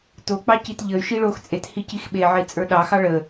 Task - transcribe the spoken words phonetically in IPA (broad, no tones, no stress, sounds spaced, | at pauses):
t o k͡p ɑ c i t ʎ ə y̯ ʃ i ɭ o x t͡sʼ e t h i c i x ɓ e ʕ i t͡sʼ ə˞ ɗ ɑ x ɑ ɭ ə